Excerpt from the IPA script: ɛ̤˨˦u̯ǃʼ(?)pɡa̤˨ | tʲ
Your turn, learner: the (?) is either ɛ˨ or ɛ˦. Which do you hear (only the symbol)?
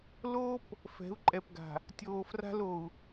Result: ɛ˨